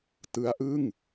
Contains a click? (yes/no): no